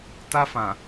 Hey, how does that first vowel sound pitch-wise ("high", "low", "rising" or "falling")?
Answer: high